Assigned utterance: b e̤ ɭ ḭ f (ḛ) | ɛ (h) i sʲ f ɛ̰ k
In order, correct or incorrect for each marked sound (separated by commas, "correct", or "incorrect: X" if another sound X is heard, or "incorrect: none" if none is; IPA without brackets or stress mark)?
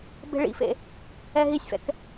correct, incorrect: ɦ